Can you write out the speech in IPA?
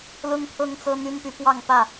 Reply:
l ʊ˦ ŋ pʰ ɤ˦ ŋ t͡s ɤ˦ n̪ y˦ n p y˨˦ p w ɑ˥˨ ŋ p ä˥˨

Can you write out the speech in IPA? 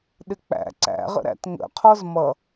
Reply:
ɗ ɪ k͡p æ̰ ǀ æ̰ ʁ ə̰ ɾ æ̰ t ŋ ə̰ qʰ ɔ z m ʌ

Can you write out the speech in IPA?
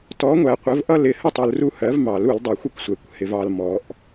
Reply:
t ɔ˨˥ ŋʷ æ˨ qʷ ə˨˥ v ʔ ʌ˦ l ɪ˨˩˦ h ə˥˩ tˤ u˨ l r u˦ h ɜ˨˥ v m ɑ˨˩˦ l u˨˩˦ l dˤ ʊ˨˩˦ xʷ ɪ˥˩ kʷ sʷ ɛ˨˩˦ kʷ h ɪ˨ v ɑ˨ l m ɔ˨˩˦ ʔ

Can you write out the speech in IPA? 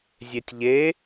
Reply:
zʲ e tʲ ʎ e

